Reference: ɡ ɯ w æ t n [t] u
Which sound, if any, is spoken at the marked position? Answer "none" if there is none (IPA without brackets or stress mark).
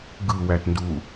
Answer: d